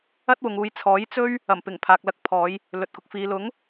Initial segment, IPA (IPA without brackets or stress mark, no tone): ɐ